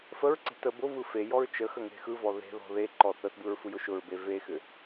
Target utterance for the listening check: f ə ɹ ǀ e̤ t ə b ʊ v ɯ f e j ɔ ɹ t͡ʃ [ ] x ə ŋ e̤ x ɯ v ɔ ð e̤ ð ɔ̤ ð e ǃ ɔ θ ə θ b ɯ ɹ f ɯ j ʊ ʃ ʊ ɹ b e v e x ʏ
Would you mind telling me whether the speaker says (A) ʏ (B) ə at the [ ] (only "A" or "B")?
B